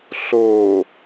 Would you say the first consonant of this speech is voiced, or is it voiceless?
voiceless